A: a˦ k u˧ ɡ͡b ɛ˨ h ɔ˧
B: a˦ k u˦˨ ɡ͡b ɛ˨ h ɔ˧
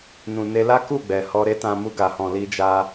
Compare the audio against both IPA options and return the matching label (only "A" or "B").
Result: B